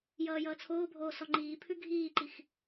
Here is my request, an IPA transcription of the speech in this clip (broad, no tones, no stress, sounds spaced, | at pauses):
j ʌː j ʌː t͡sʰ oː bʱ oː s ɔ ŋ͡ǃ iː pʰ ʉ ɡʱ iː ǃ i x